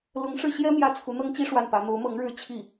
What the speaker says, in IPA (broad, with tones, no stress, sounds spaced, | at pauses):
l ʊ˧˥ ŋ ʂ ɻ̩˥˩ ɕ j ɛ˥ m j ä˥˩ t͡sʰ u˧˥ n̪ ɤ˥ ŋ t͡ɕ i˥ ʂ w a˥˩ n p ä˧˥ n̪ o˧˥ ʊ̯ m ɤ˧˥ ŋ ɻ ɻ̩˥˧ t͡ɕʰ i˥˩